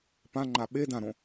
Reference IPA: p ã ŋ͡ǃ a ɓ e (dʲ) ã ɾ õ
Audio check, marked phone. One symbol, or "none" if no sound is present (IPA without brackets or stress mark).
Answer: d